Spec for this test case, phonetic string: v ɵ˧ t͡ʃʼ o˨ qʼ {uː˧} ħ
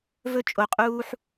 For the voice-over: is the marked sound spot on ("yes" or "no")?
yes